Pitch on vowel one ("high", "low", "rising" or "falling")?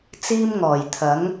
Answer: high